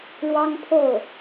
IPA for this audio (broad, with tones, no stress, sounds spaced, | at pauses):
ɻ w ɑ˥ ŋ pʰ o˥˩ ʊ̯